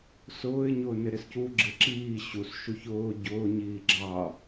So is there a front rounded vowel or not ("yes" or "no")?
no